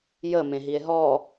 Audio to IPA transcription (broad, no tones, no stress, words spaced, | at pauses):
jəmẽɦie̯ ɦɔ